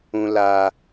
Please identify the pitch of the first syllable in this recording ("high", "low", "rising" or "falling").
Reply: low